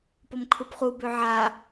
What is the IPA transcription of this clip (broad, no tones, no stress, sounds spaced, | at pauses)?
p ɔ m kʰ u p χ u b ø ʕ a